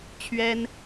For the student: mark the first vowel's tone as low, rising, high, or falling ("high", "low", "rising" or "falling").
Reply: high